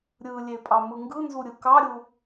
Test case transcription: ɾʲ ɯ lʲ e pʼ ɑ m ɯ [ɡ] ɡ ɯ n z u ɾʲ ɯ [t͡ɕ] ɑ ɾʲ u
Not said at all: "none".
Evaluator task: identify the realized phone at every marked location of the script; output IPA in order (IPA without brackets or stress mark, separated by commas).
ŋ, k